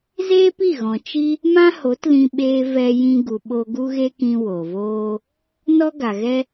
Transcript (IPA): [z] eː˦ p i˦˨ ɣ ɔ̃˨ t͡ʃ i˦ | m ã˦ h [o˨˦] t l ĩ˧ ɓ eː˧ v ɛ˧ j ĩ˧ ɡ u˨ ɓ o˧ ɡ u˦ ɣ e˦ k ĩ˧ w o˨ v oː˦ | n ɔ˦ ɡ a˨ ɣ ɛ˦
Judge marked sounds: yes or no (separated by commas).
yes, yes